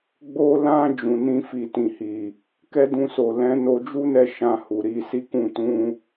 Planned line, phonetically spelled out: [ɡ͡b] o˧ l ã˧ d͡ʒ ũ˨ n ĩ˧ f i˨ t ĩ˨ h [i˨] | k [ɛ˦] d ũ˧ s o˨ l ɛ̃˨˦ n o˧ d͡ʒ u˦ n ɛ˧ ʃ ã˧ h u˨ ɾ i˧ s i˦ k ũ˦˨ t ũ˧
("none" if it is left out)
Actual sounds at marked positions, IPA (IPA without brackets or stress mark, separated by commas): ɡ͡b, i˨, ɛ˦